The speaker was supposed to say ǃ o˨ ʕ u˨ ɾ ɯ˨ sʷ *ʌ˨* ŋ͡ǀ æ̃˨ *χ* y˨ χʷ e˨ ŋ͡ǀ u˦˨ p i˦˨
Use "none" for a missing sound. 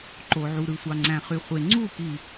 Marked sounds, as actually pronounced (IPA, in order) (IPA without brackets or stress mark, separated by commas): ɑ˨, χ